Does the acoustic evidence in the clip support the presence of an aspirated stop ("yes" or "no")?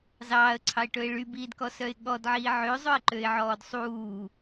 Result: yes